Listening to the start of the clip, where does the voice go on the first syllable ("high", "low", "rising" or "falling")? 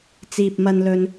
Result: low